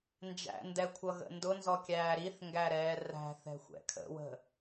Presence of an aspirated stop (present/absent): present